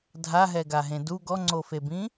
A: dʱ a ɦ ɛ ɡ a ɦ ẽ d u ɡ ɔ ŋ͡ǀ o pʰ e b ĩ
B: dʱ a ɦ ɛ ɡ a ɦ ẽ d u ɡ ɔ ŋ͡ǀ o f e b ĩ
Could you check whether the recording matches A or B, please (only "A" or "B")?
B